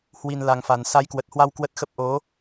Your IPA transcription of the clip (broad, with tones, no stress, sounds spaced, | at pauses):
h w i˨˩ n l a˨˩ ŋ f a˨˩ n s a˨˦ j k w ə˨˩ t̚ h w a˧ w k w ə˦˥ t̚ x ə˦˥ p̚ ʔ o˨˦